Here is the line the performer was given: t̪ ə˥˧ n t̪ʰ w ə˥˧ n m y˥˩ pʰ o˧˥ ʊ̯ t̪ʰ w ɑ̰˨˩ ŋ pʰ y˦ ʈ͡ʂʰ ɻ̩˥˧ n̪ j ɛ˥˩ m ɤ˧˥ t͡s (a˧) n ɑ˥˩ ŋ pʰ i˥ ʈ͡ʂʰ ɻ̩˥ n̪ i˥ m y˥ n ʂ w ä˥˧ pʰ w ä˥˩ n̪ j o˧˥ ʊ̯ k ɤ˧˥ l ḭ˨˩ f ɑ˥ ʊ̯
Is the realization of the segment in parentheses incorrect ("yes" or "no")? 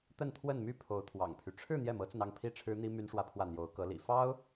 yes